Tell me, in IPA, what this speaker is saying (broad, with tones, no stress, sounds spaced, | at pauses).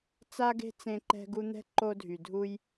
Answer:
t͡s a˦ ɡ e̤˦ t͡s ẽ˦ ǃ ɛ̤˦ ɡ u˦ n̪ ɛ̤˥ ǃ o˦ dʱ y˨ dʱ u˦ j